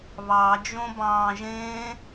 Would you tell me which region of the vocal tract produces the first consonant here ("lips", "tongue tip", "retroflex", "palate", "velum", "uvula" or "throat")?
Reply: lips